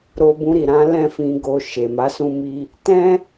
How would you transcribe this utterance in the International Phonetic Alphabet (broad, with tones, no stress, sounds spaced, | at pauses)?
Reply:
ɾ o˧ b ũ˧ ɾ i˨ ɾ ã˨˦ l ɛ̃˦˨ f ĩ˧ ɡ o˧ ʃ e˨ m a˨˦ s ũ˦ m i˦ | t ɛ̃˦